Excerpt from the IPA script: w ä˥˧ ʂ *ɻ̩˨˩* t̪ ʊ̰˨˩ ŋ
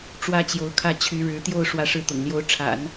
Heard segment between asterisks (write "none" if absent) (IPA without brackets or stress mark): ɻ̩˥˩